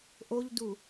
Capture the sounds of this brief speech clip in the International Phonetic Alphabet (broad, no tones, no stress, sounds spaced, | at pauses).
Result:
ʔ o ʎ d u